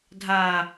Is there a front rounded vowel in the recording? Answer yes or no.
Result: no